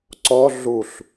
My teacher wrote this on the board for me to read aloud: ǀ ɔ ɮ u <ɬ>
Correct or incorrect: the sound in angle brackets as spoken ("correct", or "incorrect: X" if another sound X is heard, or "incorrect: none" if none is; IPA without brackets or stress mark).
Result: correct